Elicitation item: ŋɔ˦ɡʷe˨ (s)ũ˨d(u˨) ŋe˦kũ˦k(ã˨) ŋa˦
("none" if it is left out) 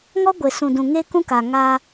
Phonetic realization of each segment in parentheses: s, ũ˨, a˨

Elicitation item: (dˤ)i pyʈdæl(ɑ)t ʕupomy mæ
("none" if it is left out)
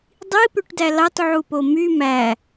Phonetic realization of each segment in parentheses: dˤ, ɑ

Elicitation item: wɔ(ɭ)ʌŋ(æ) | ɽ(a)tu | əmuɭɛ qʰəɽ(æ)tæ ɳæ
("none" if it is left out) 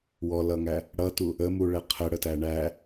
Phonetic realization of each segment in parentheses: l, æ, ʌ, ə

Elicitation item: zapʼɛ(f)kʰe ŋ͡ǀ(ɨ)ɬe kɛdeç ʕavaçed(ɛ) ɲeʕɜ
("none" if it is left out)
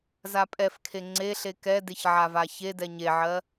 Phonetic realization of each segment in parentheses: f, e, ɛ

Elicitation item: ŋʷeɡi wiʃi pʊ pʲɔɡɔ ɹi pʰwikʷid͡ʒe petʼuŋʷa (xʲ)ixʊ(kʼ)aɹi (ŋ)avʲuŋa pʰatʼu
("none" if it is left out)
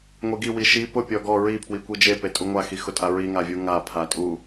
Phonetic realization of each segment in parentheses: x, tʼ, ŋ

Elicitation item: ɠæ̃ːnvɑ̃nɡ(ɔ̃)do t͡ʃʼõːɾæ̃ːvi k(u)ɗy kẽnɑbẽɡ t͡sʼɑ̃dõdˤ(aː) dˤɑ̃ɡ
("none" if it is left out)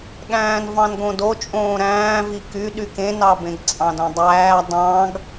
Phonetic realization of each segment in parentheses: õ, y, æː

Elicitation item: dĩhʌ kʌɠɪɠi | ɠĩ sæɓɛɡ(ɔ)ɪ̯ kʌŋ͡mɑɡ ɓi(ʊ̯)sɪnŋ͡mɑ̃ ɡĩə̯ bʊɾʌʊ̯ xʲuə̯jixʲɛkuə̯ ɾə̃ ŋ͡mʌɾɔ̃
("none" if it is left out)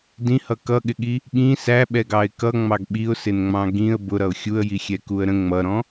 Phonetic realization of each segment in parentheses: ɑ, ʊ̯

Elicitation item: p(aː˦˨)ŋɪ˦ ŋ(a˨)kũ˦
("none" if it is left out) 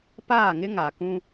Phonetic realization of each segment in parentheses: aː˦˨, a˨

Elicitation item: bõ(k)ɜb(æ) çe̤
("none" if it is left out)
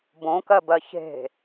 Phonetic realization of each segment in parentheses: k, ɜ

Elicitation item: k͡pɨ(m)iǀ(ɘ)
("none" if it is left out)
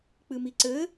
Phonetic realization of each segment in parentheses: m, ɘ

